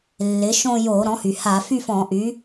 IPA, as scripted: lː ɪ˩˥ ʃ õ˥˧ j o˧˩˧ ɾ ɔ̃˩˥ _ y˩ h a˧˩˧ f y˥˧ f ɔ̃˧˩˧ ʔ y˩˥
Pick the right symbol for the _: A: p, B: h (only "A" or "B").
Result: B